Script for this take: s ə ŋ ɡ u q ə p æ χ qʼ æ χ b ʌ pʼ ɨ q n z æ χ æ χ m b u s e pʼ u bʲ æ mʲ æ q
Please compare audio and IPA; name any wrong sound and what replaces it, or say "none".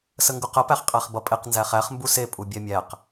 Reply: ɨ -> e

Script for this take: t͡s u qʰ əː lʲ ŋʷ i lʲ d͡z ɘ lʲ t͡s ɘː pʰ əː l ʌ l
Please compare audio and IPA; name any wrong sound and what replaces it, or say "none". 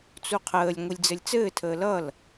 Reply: pʰ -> tʰ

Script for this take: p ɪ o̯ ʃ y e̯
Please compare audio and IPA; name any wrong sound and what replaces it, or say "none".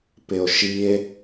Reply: y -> i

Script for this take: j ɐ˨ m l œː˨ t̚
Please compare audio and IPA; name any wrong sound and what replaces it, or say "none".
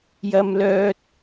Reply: none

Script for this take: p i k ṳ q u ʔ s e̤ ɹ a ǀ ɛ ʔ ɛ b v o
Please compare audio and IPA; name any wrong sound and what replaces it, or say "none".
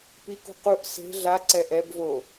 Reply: ɹ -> ɮ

